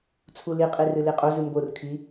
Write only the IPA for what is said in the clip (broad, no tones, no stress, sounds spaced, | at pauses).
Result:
t͡sʰ u l i qʼ i r ɨ l i qʼ o z ɨ m b o r kʰ i